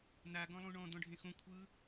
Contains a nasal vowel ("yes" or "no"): yes